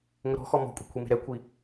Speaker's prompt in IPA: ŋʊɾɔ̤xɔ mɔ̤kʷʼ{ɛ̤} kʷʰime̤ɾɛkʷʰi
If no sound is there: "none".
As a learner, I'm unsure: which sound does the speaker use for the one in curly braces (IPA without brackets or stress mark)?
e̤